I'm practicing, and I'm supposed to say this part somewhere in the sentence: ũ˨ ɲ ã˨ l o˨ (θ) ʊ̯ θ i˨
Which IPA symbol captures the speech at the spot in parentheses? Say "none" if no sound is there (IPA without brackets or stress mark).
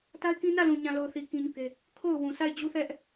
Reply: none